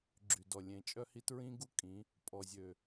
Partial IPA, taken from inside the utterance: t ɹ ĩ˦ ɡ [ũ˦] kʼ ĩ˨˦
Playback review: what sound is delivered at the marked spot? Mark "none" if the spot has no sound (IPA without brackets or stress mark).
u˦